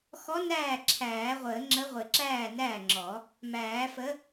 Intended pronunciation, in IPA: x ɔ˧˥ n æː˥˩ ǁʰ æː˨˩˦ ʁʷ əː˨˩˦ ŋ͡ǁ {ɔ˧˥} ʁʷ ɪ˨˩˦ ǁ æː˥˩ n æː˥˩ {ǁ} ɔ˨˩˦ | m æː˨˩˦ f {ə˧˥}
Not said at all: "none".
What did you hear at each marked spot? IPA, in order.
ə˧˥, ŋ͡ǁ, ə˧˥

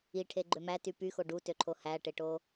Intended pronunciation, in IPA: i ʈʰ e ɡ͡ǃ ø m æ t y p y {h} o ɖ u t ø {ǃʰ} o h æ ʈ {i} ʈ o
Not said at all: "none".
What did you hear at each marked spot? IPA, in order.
x, ǃʰ, e

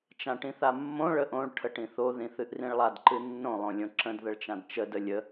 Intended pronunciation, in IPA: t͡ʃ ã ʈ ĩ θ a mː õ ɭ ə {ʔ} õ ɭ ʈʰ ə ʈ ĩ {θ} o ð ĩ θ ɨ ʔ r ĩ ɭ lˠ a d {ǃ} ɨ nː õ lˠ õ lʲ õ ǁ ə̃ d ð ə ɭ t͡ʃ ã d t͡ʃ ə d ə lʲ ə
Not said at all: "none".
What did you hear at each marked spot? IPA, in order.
ʔ, θ, ǃ

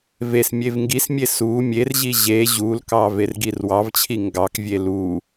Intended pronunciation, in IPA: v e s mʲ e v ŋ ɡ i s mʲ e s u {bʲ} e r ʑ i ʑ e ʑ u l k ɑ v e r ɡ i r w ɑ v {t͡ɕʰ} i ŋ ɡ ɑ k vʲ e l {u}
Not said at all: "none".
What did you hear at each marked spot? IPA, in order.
mʲ, t͡ɕʰ, u

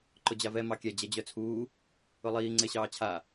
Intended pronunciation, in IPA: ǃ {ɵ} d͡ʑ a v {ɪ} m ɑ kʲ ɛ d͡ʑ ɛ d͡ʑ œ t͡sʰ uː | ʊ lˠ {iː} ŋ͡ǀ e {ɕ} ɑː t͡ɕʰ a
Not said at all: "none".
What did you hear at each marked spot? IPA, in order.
ʊ, ɛ, iː, ɕ

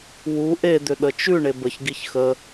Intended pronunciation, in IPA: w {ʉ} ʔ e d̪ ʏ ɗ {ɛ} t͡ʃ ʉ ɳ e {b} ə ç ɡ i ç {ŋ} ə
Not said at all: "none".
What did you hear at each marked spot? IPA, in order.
u, ə, b, x

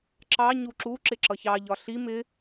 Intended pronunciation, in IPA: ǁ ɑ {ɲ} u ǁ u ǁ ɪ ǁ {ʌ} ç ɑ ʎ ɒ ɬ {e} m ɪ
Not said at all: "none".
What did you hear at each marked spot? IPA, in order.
ɲ, ʌ, i

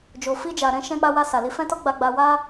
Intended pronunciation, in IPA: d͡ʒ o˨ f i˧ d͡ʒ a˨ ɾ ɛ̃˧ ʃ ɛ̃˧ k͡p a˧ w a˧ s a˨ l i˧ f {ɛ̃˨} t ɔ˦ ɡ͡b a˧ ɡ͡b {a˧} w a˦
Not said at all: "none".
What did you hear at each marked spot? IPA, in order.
ɛ̃˦, a˧

